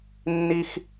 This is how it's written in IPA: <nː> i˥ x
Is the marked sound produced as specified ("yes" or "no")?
yes